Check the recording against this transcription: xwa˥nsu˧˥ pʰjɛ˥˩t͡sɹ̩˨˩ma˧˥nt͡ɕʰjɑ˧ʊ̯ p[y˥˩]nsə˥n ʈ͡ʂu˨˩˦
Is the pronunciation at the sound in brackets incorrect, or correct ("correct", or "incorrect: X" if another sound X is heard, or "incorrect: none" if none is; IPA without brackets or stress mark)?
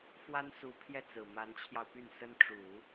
correct